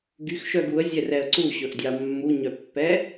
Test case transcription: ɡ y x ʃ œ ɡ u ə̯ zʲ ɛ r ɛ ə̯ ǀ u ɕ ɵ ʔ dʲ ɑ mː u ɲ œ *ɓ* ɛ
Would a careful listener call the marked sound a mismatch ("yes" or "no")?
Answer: yes